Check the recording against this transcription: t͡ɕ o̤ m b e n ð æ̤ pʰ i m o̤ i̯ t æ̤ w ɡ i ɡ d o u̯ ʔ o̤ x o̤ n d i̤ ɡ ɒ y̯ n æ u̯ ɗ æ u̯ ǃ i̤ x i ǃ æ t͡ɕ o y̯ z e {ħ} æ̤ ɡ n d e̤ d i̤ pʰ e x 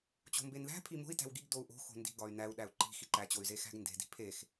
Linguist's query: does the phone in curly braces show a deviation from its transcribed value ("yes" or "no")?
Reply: yes